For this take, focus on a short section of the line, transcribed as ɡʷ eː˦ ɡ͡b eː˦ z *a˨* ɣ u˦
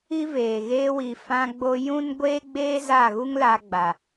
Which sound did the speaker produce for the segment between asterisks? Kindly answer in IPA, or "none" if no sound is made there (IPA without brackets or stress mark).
a˦˨